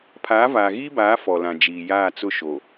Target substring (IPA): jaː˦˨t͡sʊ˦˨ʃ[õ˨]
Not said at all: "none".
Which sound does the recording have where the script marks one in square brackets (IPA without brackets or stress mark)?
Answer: o˨